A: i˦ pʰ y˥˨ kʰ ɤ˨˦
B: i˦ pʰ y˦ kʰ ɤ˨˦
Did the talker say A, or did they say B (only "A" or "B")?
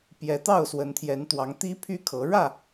B